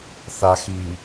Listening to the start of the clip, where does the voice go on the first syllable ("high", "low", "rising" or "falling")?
low